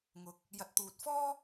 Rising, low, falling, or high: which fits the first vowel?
rising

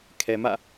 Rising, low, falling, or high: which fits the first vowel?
low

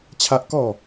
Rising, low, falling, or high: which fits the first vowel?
high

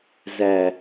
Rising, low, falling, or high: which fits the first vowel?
low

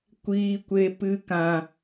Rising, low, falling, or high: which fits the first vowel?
high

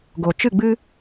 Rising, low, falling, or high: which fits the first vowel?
low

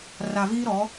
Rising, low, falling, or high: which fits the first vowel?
low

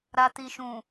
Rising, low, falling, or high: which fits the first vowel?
low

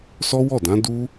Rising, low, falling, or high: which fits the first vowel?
high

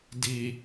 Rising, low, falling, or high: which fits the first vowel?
low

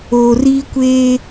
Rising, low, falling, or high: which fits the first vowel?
low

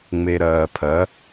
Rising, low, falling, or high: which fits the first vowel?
low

